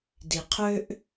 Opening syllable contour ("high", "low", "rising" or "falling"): low